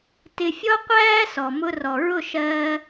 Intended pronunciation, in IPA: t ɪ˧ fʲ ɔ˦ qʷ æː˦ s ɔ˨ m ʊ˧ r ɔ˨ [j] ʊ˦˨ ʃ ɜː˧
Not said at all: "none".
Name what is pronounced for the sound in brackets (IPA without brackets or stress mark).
ɹ